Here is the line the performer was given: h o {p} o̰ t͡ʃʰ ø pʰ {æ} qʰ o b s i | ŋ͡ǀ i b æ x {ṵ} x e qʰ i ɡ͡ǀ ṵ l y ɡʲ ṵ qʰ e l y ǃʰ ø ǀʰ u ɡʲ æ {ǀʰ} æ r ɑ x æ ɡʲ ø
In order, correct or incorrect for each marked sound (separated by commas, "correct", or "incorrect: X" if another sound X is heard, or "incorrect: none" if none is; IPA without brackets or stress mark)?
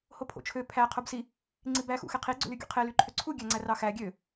incorrect: pʰ, correct, correct, incorrect: ŋ͡ǀ